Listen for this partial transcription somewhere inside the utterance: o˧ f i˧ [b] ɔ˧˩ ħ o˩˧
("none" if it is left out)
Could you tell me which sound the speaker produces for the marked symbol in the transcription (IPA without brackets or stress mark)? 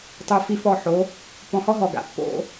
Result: f